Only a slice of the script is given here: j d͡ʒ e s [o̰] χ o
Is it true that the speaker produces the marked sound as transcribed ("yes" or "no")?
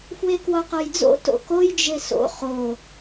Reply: yes